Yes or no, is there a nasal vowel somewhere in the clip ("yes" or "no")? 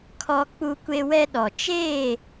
no